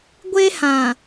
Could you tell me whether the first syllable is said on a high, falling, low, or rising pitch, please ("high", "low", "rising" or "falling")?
high